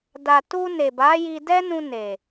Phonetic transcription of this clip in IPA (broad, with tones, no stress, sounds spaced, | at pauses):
d a˨ t u˧ n e˨ b a˨˦ j i˧ d ɛ˦ n ũ˧ n e˨